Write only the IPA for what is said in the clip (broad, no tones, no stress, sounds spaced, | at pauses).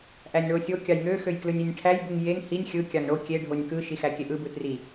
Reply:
ʔ æ nʲ ɳ o sʲ o kʲ ɑ j ŋ ø x ø j k l ɯ nʲ i nʲ ʈʰ æ j b u ŋ j e ŋ h i nʲ xʲ ɯ kʲ ɑ ŋ ɳ o kʲ e ɖʱ o nʲ k ɯ ʃ i x æ kʲ e ʔ ɯ b ɯ t r i